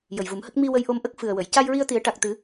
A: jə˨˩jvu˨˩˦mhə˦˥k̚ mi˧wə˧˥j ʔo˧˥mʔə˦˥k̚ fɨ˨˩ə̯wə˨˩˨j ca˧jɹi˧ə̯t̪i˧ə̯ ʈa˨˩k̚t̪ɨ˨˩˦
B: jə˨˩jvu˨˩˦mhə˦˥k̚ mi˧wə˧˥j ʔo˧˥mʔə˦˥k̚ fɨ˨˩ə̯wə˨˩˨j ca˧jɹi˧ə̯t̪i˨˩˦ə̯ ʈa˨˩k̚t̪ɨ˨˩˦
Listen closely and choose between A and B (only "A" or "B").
B